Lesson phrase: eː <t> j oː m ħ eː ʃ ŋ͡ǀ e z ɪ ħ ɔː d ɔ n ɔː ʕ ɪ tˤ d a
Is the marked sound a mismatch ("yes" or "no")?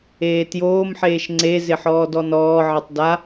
no